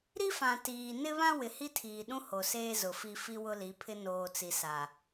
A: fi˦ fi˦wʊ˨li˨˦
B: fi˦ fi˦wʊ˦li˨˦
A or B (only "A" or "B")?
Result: B